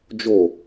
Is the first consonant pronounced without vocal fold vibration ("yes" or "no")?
no